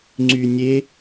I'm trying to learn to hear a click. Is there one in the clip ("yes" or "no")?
yes